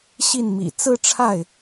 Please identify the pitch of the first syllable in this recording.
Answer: falling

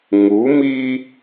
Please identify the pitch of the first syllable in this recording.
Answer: rising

